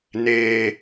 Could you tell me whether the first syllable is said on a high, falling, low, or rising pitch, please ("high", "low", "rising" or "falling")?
low